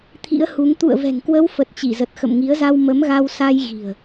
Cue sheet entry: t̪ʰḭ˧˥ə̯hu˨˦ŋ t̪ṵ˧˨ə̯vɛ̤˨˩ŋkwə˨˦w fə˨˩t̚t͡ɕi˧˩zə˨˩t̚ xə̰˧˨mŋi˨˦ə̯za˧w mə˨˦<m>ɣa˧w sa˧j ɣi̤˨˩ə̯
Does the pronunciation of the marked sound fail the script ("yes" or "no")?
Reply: no